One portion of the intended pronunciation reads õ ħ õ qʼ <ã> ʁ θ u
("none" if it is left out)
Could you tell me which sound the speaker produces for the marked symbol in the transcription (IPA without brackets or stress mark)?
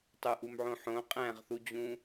æ̃